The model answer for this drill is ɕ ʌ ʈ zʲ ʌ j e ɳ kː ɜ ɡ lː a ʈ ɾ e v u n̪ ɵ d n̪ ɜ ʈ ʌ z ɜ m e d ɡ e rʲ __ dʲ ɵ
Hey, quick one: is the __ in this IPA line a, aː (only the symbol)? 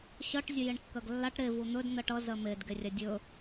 a